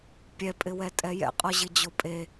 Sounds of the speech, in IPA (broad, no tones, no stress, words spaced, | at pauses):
pʲɛpʼɪwɛtʼɛ jɛ̰qʼɔʑɪd͡ʑo pʼe